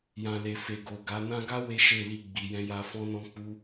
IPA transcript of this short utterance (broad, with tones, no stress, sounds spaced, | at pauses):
j ã˨ l e˨ f e˨ ɡ o˨ ɡ a˨˦ n ã˧ ɡ a˦ w e˦ ʃ e˦˨ l i˧ ɡ͡b i˨ j ɛ̃˧ j a˧ f ɔ̃˧ n ɔ̃˧ k͡p u˧